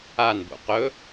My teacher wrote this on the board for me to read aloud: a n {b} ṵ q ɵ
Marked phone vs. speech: correct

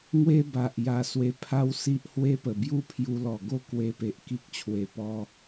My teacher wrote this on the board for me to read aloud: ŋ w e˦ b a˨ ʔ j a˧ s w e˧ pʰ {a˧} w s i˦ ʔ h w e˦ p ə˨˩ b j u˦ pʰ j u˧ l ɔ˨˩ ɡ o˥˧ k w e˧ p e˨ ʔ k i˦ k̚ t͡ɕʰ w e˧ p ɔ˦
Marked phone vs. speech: incorrect: a˦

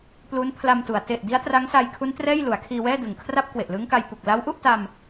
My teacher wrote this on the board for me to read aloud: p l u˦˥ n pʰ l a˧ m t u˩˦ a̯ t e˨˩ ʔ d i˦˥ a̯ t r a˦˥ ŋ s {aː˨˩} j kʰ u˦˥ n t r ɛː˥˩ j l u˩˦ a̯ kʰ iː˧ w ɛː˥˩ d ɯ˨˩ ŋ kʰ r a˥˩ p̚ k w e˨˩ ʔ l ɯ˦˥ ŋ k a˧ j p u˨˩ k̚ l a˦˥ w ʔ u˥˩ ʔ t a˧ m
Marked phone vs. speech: incorrect: aː˧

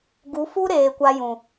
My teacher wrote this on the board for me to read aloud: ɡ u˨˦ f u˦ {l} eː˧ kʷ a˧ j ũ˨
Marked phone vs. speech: incorrect: ɾ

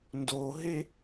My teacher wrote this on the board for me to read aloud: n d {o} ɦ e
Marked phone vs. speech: correct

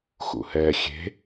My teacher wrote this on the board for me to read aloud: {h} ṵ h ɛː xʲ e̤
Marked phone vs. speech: incorrect: x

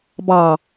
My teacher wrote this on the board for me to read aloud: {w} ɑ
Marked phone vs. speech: incorrect: b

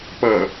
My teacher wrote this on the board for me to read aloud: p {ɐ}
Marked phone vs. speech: correct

